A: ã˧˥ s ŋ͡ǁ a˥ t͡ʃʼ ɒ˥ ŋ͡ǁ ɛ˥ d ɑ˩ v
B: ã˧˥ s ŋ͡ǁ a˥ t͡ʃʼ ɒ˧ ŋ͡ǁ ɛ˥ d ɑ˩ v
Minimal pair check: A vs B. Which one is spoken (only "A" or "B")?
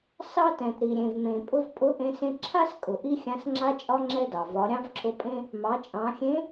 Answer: A